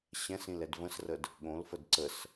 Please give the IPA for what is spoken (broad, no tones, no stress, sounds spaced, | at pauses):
ɕ ɛ̃ s ĩ l ɛ d v ə̃ s r ə d | ɠ õ l f ə d ǀ ə s